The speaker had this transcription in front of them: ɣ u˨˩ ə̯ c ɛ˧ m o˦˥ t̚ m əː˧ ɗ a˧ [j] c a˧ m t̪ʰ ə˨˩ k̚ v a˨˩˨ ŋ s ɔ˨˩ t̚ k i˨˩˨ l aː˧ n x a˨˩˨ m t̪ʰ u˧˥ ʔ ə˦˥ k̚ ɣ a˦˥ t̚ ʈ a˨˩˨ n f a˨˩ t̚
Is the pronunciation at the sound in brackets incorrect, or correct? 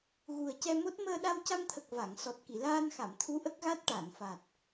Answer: incorrect